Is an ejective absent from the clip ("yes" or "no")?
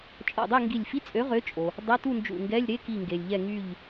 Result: no